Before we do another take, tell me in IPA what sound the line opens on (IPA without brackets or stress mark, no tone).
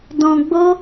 d